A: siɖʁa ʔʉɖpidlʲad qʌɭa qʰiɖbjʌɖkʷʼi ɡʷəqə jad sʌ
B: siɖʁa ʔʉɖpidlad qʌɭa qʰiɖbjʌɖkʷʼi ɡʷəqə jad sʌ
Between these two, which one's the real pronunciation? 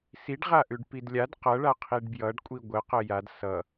A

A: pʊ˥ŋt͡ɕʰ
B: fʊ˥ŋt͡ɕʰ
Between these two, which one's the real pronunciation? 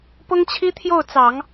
A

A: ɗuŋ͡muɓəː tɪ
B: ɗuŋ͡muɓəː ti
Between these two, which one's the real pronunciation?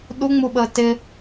A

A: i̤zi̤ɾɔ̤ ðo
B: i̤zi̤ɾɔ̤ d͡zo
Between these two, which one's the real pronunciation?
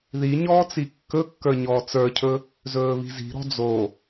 B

